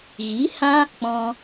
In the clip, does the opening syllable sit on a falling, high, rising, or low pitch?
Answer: rising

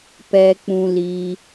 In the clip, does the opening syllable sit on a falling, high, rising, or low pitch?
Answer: high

